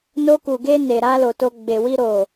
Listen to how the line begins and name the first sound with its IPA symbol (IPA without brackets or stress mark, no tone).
n